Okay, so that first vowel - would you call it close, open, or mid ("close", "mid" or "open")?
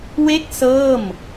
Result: mid